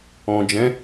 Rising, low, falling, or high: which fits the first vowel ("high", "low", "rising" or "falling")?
low